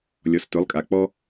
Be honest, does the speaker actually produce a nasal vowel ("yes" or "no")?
no